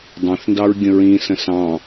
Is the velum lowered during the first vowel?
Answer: yes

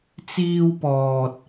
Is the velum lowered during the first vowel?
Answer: no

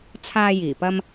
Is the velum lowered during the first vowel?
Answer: no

